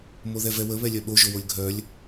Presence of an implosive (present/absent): present